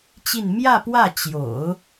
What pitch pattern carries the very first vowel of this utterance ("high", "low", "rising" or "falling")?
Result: falling